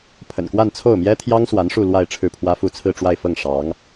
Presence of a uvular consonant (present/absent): absent